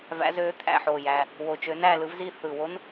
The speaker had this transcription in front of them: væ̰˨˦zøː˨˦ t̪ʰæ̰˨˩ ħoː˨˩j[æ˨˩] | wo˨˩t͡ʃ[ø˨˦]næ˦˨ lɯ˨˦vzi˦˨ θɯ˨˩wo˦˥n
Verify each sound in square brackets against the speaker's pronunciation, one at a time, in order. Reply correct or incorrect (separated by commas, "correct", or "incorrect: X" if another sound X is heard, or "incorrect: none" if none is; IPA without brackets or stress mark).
correct, correct